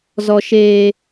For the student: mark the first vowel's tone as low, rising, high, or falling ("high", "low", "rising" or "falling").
high